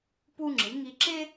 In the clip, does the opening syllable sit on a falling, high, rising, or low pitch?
high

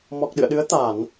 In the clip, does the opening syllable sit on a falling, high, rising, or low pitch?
low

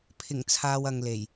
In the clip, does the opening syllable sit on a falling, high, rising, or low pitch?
low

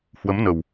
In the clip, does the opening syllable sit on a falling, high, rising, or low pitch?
rising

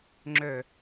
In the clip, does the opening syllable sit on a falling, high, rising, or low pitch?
low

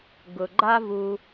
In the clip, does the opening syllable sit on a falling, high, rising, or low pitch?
low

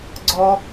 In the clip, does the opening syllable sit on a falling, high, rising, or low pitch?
high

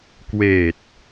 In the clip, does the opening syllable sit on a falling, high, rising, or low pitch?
low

